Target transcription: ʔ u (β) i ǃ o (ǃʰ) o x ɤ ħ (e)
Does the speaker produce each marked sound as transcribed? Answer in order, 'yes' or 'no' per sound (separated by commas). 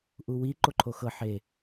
no, yes, yes